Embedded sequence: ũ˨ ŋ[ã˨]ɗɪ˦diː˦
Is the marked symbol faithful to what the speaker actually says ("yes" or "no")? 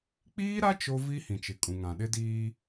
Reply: yes